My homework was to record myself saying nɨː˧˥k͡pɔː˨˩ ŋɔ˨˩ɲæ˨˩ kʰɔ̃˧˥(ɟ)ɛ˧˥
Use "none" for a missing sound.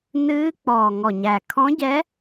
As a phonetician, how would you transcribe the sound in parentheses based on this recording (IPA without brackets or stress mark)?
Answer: ɟ